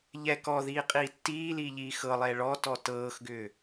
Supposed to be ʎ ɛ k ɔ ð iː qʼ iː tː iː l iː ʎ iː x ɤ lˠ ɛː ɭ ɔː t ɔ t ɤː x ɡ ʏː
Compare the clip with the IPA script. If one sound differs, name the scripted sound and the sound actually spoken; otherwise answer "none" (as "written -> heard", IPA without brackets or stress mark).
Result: none